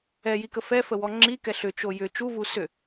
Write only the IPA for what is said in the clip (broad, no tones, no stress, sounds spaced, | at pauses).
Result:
ɛ j i k ə f ɛ f ə w ɔ ŋ͡ǁ i k ɛ ɬ ʏ t͡ʃ o j ʏ t͡ʃ u v u s ʏ